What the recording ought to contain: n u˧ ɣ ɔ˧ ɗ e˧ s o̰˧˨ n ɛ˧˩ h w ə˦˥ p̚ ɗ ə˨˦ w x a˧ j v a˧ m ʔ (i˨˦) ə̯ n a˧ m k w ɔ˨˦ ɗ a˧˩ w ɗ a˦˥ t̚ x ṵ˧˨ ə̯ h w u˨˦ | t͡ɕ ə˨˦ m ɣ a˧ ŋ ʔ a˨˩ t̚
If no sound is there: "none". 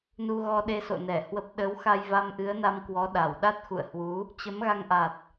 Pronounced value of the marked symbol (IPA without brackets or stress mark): ɨ˨˦